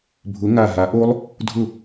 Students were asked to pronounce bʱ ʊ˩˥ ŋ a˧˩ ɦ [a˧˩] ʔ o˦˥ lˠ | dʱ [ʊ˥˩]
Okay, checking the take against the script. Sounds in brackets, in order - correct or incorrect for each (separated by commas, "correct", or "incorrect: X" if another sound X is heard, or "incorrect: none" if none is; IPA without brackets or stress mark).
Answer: incorrect: a˩˥, correct